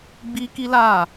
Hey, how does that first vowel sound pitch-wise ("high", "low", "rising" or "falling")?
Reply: high